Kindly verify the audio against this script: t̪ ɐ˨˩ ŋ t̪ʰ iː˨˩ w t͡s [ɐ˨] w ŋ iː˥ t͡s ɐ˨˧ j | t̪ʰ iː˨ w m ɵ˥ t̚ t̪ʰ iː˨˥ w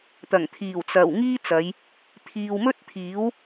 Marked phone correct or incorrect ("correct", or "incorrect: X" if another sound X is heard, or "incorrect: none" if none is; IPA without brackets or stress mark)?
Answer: incorrect: ɐ˨˩